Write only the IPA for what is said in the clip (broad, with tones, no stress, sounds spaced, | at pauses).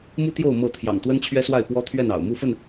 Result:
m u˦ t̪ j o˥˨ ʊ̯ m ɤ˥˨ t̪ʰ j ɑ̰˨˩ ŋ t̪ w ə˦ n t͡ɕʰ ɥ ɛ˦ s w a˥˨ ɪ̯ p w ɔ˦ t̪ʰ ɥ ɛ˥˨ n ɑ̰˨˩ ʊ̯ m u˥˨ f ə˥˨ n